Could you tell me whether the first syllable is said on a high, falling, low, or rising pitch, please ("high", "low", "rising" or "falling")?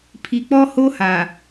low